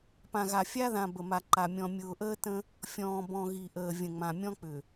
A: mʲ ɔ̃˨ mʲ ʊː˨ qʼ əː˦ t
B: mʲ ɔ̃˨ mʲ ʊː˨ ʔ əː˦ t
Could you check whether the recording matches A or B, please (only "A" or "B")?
B